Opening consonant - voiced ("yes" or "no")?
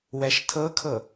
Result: yes